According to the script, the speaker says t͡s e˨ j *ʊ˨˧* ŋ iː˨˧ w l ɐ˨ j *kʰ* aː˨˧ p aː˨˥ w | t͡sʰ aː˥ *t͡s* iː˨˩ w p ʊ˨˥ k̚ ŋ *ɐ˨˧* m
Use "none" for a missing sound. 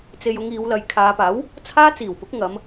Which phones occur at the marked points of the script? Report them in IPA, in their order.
ʊ˨˧, kʰ, t͡s, ɐ˨˧

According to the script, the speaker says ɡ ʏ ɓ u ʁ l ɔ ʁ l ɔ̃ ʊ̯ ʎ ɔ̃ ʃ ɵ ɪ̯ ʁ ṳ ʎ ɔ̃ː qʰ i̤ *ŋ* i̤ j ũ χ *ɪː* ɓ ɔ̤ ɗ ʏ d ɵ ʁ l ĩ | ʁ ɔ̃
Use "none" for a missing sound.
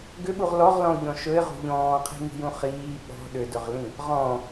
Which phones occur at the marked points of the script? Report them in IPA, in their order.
ŋ, iː

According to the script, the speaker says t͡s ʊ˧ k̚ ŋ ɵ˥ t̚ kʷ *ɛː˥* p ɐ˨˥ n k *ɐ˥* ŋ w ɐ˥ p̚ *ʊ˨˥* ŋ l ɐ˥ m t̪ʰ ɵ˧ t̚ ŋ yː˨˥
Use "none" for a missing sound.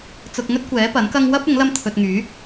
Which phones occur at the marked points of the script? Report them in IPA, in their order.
ɛː˨˥, ɐ˥, ʊ˨˥

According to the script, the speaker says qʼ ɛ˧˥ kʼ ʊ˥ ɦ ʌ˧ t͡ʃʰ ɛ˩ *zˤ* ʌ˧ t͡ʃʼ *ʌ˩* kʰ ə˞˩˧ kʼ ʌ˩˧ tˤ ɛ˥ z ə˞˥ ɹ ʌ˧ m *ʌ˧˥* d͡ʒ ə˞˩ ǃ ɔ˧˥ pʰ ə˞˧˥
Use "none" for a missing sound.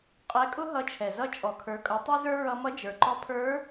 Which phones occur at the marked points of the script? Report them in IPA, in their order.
z, ɔ˩, ʌ˧˥

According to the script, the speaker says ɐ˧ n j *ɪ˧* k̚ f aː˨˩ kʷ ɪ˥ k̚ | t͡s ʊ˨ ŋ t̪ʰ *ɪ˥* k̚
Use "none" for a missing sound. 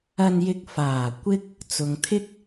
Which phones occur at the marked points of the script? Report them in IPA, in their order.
ɪ˧, ɪ˥

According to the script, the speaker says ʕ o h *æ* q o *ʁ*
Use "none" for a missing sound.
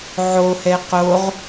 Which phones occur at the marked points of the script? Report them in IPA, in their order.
ɛ, ʁ

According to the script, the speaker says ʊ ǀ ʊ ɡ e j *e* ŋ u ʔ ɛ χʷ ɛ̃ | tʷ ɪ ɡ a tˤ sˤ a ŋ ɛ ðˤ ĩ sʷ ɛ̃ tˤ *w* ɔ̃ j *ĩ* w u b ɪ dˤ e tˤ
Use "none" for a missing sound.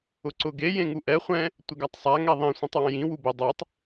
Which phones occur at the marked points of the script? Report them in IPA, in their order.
ẽ, w, ĩ

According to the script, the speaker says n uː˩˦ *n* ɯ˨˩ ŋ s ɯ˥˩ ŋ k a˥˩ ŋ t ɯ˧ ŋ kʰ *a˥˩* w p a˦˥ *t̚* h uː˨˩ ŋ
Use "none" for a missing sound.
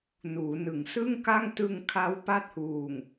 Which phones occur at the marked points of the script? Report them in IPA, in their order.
n, a˦˥, t̚

